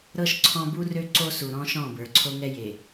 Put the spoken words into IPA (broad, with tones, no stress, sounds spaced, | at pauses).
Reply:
ɾ ɤ˦ ʃ ǀʰ ɔ̃˦ b u˦ r ø˦ ǀ o˦ s u˨ ɾ ɔ̃˦ ʃ ɔ̃˦˨ b ə˞˨ ǀʰ o˦ ŋ ɛ˦ j e˨